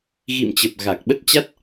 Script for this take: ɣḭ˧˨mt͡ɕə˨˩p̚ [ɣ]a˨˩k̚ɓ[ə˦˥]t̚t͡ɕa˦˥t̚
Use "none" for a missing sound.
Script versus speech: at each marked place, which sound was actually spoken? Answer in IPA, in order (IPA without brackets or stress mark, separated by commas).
ɣ, ə˦˥